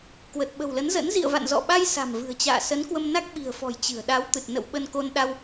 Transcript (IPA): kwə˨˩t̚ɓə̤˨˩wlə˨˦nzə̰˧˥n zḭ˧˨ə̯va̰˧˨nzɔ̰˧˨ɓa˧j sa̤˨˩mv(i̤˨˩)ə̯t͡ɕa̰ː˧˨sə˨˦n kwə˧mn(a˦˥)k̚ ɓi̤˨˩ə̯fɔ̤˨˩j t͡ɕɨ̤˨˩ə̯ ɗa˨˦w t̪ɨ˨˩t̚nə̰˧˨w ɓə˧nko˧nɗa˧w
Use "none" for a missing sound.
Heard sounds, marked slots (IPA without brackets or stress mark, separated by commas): ɨ̤˨˩, a˦˥